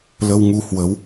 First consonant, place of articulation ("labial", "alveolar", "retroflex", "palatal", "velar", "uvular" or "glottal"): alveolar